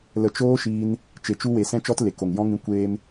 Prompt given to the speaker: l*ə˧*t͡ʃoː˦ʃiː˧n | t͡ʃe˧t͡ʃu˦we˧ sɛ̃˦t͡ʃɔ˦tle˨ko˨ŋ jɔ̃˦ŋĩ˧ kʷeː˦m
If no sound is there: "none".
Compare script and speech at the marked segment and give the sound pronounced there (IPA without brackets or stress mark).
ə˧